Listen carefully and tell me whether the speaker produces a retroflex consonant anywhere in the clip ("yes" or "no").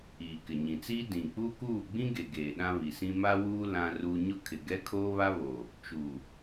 no